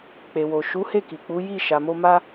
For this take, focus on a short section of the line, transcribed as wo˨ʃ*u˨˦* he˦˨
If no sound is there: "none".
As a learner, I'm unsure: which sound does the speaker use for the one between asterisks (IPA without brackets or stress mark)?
u˨˦